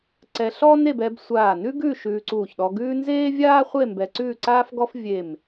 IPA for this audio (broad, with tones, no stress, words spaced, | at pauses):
ǀɛ˧ɬɔ˥ ne˥˨b ɛ˧b sʷaː˧˩nʉ˥ɡʉ˥˨ ʃʉː˧ǀuː˧˩çɗɔ˧ɡʉː˥ nzeː˥vʲaː˥χʷe˥˨ mbɛ˧ǀʉː˥˨ǀaː˥fɡɔ˥f vʲe˧˩m